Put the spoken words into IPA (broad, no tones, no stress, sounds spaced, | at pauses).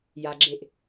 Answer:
j a ɡ͡ǁ e ʔ